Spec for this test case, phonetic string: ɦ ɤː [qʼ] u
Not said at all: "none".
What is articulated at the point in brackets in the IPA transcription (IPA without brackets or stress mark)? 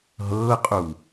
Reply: qʼ